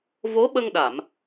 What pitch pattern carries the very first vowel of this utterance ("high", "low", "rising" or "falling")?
rising